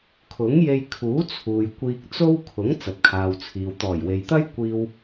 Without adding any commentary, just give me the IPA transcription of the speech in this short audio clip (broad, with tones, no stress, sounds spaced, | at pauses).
kʰ ʊ˨˥ ŋ j e˧ j kʰ uː˨˥ t͡sʰ uː˨ j kʷ iː˧ k̚ t͡s o˥ w kʰ ʊ˨˥ ŋ t͡s ɐ˨ t̚ kʰ aː˨ w t͡sʰ iː˨ w t̪ ɔː˨˩ j w e˨ j t̪ ɐ˥ j kʷ iː˧ w